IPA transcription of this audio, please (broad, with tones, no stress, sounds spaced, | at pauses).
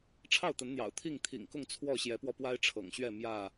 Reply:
ʈ͡ʂʰ ɑ˥˨ ʊ̯ t̪ ə˨˦ n n̪ j ɑ̰˨˩ ʊ̯ t̪ʰ i˥˨ ŋ t̪ʰ ḭ˨˩ ŋ k ʊ˥˨ ŋ t͡sʰ w ɔ˥˨ ɕ j ɛ˨˦ p w ɔ˧ p w a˦ ɪ̯ ʈ͡ʂʰ ɤ̰˨˩ ŋ ɕ ɥ ɛ˥˨ m j ä˥˨